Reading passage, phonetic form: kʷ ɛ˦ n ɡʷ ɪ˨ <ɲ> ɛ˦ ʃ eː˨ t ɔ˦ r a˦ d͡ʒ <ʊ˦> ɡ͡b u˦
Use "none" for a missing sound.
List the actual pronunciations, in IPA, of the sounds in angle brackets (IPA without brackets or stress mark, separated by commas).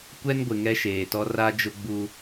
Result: ŋ, ʊ˦